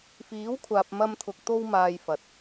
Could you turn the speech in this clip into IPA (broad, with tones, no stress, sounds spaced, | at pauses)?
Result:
f iː˨˥ w kʷʰ aː˨ p̚ m ɐ˧ m t̪ʰ ʊ˨ k̚ t̪ o˧ w m aː˨ j f ɐ˨ t̚